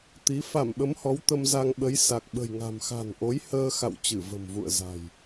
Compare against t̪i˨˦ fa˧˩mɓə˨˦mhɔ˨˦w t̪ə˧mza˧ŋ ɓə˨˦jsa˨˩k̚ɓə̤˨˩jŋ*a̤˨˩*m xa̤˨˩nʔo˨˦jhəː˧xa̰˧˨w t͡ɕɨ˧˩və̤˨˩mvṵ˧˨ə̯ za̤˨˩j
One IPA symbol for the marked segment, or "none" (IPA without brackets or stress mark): a̤˨˩